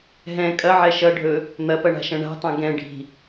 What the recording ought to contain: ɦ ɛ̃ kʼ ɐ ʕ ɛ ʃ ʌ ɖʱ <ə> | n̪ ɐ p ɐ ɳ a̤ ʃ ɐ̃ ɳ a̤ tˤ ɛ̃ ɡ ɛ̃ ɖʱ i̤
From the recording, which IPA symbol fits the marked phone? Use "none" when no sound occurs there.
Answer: ɵ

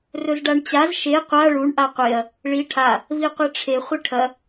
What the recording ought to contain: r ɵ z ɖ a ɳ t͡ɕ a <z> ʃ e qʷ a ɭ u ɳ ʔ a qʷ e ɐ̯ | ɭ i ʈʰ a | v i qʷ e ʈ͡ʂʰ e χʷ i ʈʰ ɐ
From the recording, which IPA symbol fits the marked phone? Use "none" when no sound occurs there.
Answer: z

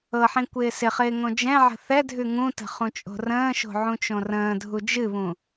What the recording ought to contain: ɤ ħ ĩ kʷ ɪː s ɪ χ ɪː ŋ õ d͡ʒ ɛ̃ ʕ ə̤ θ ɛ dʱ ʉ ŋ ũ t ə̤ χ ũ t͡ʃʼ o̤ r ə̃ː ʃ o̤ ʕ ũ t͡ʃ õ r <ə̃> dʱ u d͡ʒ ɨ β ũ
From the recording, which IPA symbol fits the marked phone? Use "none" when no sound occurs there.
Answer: ə̃ː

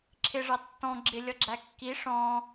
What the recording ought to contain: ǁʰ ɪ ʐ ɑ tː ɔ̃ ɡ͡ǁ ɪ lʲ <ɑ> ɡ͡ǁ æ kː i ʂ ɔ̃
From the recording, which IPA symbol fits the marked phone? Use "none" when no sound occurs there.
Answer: ʌ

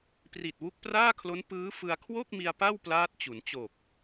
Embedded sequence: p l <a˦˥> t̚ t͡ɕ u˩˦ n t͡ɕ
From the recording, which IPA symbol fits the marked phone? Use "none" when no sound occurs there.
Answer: aː˦˥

